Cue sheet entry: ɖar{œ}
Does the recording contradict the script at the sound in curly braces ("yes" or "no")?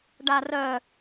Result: no